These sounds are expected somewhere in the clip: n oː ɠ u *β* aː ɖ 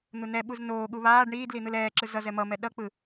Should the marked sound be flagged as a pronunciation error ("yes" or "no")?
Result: no